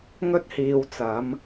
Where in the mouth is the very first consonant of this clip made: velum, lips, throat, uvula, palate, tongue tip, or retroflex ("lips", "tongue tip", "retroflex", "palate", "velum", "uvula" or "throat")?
velum